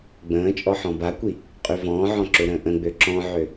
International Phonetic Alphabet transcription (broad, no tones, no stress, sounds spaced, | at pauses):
ɡ͡b ə̃ː t͡ʃʼ ɔ ħ ɔ̃ b a kʷ i | qʼ y v ɔ̃ː ʕ ɔ̃ ǁ ø ɾ ə̃ː ʔ ə̃ ɡ͡b ø ǁ ɔ̃ ʕ ø